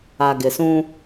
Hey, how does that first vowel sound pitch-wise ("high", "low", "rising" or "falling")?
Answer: low